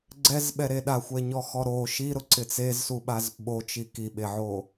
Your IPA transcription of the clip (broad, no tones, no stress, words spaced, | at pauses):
ɡ͡ǀɛzɓɛɾe ɗaxʷɛɲɔxɔ ɾo ʃiɾʊǀɪ t͡sezsuɓaz ɓot͡ʃi kiɓeʕo